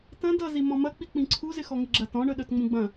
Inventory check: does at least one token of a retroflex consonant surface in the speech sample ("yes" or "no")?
yes